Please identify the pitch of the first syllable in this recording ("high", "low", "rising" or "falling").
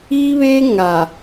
high